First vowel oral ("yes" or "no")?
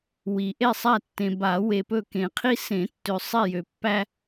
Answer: yes